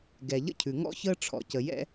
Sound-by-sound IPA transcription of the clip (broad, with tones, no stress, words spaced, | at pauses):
ɡɛ˨ʎə̰˦cʰʉ˨ ŋɔ̰˦çəː˦ ʈ͡ʂʰɔ̰˨cə˨jɛ̰˦